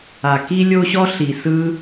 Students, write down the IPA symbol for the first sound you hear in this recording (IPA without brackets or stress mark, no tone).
a